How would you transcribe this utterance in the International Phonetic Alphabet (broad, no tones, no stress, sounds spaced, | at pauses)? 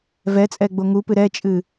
v ɛ t͡sʼ ɛ ɡ͡b o ŋ u p ɨ ɾ ɛ t͡ʃʼ ɨ